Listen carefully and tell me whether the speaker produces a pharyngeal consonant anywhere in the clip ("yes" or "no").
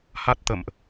no